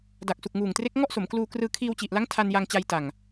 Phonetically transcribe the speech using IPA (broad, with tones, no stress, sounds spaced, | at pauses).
d a˨˩ k̚ s u˨˩ k̚ ŋ uː˨˩ ŋ t r e˦˥ k̚ ŋ ɔ˥˩ ʔ s o˩˦ m k l uː˧ k r ɯː˧ kʰ iː˧ w t͡ɕ i˨˩ ʔ l a˦˥ ŋ tʰ a˧ n j a˧ ŋ t͡ɕ a˧ j t a˨˩ ŋ